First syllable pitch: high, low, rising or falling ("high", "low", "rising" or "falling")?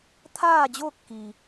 falling